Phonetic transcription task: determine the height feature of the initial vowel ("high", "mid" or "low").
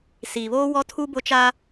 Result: high